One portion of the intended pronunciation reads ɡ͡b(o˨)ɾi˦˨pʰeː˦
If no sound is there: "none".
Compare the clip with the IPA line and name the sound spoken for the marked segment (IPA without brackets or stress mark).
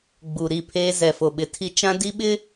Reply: u˨